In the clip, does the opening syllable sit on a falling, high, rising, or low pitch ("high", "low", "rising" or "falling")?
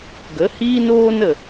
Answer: rising